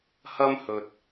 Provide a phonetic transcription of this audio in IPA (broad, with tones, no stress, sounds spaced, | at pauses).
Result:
h ɐ˥ m h ɵ˧ t̚